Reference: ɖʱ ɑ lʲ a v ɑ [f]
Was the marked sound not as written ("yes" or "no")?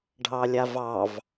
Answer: yes